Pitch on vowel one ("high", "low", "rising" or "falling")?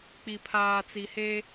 low